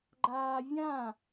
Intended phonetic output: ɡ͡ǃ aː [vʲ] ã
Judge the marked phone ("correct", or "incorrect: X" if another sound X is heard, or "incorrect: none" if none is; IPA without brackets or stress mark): correct